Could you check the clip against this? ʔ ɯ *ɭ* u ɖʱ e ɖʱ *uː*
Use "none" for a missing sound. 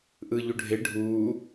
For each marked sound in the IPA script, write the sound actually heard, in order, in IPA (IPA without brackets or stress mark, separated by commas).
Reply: ʎ, uː